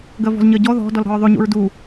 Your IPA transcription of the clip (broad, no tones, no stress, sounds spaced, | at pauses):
ɡ ɜ v ɔ̤ z ɲ ɜ ɟ ɔ ð ɔ̤ d ɔ l ɾ ɔ̤ ɹ ðˤ y ɲ ṵ ɹ d u